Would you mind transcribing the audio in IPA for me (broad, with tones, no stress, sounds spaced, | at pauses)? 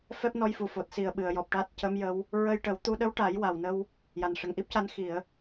f ɛ˦˥ p̚ n ɔ˧ j f u˨˩ f o˨˩ t̚ s i˨˩ ə̯ ɓ ɨ˨˩˨ ə̯ j ɔ˨˩ p̚ ʈ aː˦˥ t̚ c ə˧˥ m j ə˧˥ w | ɹ ə˧ j ʈ ə˨˩˦ w t̪ u˧ ɗ ə˧˥ w ʈ a˨˩˦ j w a˨˩ w n ə˧ w | j a˨˩ n ʂ ə˨˩ ŋ ʔ i˦˥ p̚ c a˧ n x i˨˩˨ ə̯